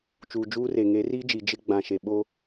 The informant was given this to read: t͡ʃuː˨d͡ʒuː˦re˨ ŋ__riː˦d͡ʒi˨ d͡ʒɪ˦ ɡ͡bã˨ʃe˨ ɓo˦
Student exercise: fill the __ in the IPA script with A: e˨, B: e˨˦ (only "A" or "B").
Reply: B